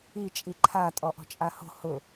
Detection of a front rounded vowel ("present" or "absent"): absent